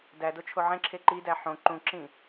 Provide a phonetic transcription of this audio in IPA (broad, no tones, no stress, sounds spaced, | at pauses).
d æ d o t͡ʃʰ o ʕ ẽ ǁʰ e ǃ i d æ ħ õ ǃ ũ ǁ ĩ